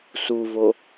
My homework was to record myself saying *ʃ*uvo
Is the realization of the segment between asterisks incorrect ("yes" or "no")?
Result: yes